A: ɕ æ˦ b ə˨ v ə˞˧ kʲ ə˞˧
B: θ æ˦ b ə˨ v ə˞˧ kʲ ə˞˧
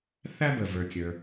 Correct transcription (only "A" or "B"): B